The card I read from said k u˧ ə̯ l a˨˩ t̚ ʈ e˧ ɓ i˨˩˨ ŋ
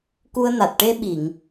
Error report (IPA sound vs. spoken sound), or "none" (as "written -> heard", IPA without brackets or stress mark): l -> n